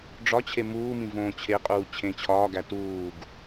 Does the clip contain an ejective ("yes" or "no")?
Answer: yes